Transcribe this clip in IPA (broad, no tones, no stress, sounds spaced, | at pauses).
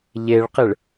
ʎ e ɭ q ɪ ɭ